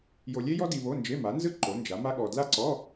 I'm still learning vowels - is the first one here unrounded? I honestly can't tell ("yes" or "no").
no